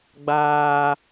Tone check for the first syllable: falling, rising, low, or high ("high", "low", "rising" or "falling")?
high